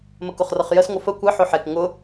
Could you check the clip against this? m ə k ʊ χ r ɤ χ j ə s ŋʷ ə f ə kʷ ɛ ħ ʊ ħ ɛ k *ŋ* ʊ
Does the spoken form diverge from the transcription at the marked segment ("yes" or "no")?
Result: no